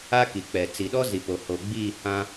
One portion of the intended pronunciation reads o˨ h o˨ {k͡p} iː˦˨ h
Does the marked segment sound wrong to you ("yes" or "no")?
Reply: yes